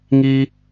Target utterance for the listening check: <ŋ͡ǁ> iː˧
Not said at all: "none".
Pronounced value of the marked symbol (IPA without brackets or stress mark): ŋ